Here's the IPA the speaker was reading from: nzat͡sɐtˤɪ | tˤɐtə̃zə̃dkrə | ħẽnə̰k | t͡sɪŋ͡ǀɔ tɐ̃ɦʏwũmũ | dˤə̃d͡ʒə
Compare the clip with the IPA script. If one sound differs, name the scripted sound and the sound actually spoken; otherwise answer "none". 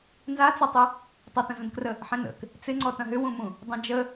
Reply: none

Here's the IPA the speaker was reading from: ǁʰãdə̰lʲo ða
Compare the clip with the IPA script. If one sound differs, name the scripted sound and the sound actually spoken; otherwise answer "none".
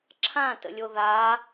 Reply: d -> t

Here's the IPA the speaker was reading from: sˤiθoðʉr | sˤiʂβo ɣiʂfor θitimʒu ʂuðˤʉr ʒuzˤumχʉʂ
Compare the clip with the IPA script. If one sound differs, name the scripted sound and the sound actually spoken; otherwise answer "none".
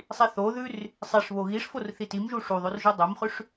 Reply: zˤ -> dˤ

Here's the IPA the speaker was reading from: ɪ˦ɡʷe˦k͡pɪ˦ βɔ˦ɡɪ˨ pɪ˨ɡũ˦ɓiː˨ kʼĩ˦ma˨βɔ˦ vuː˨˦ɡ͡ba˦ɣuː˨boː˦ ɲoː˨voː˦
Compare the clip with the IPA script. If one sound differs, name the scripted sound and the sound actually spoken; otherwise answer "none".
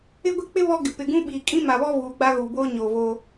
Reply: none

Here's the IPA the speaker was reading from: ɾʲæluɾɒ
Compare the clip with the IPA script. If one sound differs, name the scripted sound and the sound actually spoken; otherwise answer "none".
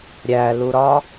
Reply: none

